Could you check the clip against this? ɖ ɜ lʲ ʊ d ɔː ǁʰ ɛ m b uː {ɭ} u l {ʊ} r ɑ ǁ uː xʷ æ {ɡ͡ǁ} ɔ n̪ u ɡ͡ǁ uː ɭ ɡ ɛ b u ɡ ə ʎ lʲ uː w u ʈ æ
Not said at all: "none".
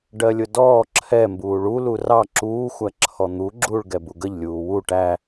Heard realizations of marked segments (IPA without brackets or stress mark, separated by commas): ɭ, u, ǁʰ